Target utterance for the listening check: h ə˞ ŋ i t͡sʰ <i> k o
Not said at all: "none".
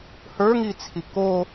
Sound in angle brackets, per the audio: i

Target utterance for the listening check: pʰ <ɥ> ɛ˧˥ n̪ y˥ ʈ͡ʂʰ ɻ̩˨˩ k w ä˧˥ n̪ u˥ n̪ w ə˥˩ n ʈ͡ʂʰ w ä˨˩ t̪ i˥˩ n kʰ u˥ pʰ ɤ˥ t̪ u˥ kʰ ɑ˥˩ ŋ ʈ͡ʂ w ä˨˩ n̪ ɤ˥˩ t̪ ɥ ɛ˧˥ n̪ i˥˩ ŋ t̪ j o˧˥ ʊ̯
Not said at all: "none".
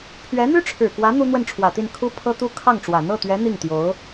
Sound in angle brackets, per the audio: ɥ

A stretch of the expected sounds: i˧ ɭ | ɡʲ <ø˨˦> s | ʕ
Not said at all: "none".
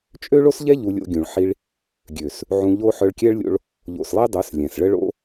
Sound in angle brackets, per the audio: ø˨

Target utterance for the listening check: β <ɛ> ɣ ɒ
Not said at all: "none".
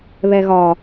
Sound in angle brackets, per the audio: ɛ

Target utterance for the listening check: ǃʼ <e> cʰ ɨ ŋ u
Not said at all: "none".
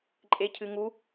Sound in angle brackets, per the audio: e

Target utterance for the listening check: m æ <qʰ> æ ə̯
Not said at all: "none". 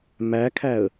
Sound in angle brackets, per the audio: kʰ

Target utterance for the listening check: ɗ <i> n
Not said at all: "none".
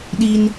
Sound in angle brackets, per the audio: i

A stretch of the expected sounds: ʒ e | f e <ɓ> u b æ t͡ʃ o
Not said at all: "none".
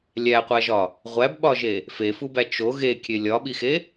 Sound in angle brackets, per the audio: f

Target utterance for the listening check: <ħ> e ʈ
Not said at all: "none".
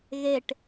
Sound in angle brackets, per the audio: ɣ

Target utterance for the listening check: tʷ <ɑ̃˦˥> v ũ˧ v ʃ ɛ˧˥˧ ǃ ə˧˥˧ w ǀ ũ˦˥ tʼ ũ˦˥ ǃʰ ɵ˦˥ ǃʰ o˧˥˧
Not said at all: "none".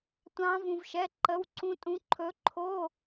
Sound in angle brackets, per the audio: ɑ̃˦˥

